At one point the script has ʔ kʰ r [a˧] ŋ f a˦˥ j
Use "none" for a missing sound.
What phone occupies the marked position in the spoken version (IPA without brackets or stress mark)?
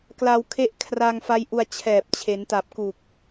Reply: a˧